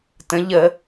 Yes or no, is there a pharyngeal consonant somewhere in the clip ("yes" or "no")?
no